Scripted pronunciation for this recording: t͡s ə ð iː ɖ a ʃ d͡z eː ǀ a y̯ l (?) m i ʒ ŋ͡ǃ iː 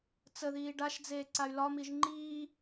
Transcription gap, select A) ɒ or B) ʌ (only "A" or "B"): A